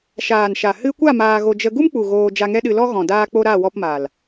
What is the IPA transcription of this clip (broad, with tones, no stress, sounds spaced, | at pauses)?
ʃ aː˨ n ʃ a˨ h ɨ˧ kʷ a˦˨ m aː˧ ɣ o˧ d͡ʒ ə˧ ɡ u˦ m k͡p u˨ ɣ oː˧ d͡ʒ a˧ ŋ ɛ˦ ɗ ɨ˧ l ɔ˦ ɣ ɔ̃˨ d aː˧ k͡p o˧ ɾ a˦˨ w ɔ˧ p m a˨ l